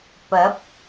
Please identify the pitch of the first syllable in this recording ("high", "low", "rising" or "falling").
rising